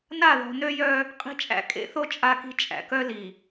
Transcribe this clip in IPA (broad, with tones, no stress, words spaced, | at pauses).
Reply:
na˦˨ðɔ̤˨ nø˦jœ˦ | qʼi̤˦t͡ʃʼæ̰˦ kʼḛ˦θo˦ t͡ʃʼa˦ki̤˦ t͡ʃʼæ̰˨kœ˦li˨